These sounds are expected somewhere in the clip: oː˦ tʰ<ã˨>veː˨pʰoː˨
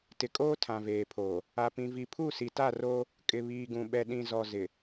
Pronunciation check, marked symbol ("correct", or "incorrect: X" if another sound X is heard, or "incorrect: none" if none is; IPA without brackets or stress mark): correct